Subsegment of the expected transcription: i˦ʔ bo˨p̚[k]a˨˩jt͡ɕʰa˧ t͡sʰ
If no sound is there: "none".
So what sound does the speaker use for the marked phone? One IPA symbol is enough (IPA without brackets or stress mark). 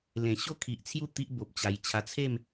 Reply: t͡ɕ